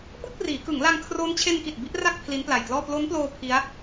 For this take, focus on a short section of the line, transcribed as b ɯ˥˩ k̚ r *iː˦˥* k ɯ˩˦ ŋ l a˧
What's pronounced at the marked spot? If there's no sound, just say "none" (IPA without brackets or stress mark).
iː˩˦